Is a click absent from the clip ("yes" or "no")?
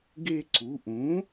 no